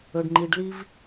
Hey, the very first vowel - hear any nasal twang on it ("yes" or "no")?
no